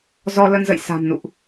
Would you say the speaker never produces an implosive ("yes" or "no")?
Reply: yes